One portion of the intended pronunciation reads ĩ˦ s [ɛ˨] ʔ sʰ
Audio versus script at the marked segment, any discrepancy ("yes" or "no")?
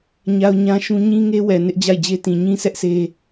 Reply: yes